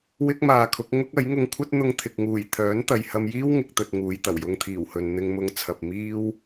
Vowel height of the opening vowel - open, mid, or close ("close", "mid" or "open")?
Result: close